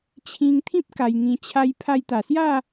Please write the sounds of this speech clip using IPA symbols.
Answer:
t͡ɕʰ ĩ˧ ŋ t̪ʰ ĩ˦ p̚ k a˧ j ŋ ĩ˧ t͡ɕʰ a˦ j pʰ a˧ j t̪ a˨˩ s j a˥˧

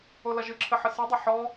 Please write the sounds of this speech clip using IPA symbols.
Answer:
o l ɐ ʒ ɨ ǁʰ ɘ ħ ɘ s ɨ dˤ ɘ ħ ɔ

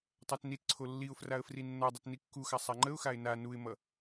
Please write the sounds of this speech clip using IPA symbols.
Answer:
tˤ a t n i t ǀʰ o lː i ʊ̯ f r a ə̯ f r i nː ʌ dˤ ʌ t n i kː u x a sˤ a ŋ͡ǃ ə ʊ̯ x a ɪ̯ n a n u ɪ̯ m ʌ

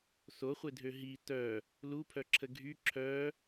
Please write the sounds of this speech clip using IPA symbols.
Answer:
s o χʷ e dʱ ø ɦ i t œ | l u pʰ œ ǁʰ ə ɡʱ y ǁʰ œ

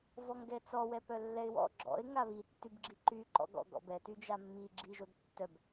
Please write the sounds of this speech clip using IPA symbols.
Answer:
v ɔ ŋ ɡ ɛ t͡s ɔ w ɛ p œ lː ɛ ɪ̯ w ɔ̰ ɡ͡ǁ ɔ̰ ɪ̯ ŋ a β i tː y b ɡ͡ǁ i ǃ y ǃ ɔ̰ ɡ ɔ̰ ɡ ɔ̰ b ɛ t y d͡ʒ a mː i ɡ͡ǁ i ʒ o d tː œ b

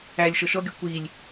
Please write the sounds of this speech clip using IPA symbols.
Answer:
æ lʲ ʃ ɔ ʃ ɔ ɡʲ ɔ kʷ i lʲ

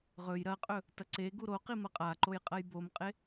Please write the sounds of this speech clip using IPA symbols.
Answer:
ʁ ɵ j ɾ ɐ qʼ ɵ | t ɐ ǀ e ɡ u ɾ o q i m ɐ qʼ a ǃ o j qʼ ɐ j b o m qʼ e

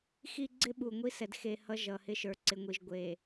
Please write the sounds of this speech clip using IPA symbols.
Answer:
x i˦ ɡ͡ǀ ɪ˦ ɓ u˨ ŋʷ i˦ s ɛ˨ d x e˨ h ʌ˦ ʒ ʌ˨ h ɪ˦ ʃ ə˞˨ ǀ ɪ˨ ŋʷ i˨ ʒ ɡʷ e˨

